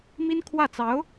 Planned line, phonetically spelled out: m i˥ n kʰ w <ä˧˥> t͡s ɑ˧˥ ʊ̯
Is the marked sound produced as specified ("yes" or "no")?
no